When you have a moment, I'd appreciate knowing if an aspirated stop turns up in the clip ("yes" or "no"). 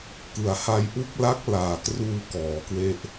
no